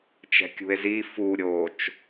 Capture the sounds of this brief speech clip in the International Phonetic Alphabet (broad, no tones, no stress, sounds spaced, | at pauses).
t͡ʃ ɛ̤ kʲ ṳ e̯ z i f u ɾʲ o t͡ʃ